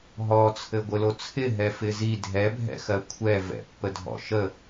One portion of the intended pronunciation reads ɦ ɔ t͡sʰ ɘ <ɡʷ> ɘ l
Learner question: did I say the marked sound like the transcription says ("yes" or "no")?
yes